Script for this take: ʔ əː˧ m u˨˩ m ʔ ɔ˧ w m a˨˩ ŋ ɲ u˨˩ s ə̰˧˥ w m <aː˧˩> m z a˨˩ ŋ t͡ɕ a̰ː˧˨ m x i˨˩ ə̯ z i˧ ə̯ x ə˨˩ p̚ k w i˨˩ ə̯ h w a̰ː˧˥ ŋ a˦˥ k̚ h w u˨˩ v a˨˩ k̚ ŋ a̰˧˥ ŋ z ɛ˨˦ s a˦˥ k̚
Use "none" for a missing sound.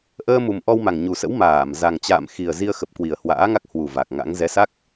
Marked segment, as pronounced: aː˧˩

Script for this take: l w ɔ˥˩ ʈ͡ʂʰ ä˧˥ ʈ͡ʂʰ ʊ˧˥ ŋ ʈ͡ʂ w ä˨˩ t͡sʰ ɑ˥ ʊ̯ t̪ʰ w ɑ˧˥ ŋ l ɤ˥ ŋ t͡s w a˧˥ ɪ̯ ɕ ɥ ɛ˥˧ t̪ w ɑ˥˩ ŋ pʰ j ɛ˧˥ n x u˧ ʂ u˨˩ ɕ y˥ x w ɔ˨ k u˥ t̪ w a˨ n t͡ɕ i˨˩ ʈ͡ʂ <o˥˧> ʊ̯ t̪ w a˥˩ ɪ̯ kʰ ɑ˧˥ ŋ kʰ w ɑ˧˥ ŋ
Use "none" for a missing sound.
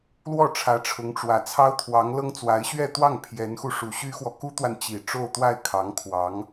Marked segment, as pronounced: o˥˧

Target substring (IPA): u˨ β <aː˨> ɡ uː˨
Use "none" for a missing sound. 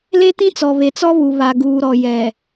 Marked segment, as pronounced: a˨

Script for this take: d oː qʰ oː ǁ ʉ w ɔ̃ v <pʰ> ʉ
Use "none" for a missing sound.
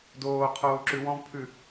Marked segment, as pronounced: pʰ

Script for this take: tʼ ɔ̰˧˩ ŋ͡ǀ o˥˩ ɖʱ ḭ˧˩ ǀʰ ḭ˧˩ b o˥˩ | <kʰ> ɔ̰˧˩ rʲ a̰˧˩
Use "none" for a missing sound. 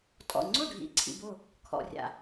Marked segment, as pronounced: kʰ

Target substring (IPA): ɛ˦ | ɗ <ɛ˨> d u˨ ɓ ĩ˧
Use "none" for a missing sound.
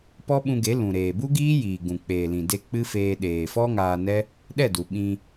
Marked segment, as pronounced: ɛ˦˨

